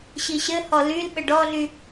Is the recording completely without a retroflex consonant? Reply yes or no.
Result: no